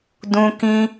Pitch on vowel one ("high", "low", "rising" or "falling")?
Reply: high